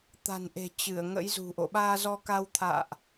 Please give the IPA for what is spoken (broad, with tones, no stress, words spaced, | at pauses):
t̪a̤˨˩nʔe̤˨˩ t͡ɕɨ˧˩ə̯ŋə̰˧˥jzṳ˨˩ʔo̰˧˨ ɓaː˧zɔ˧ka˧wt̪ʰa̰ː˧˨ʔ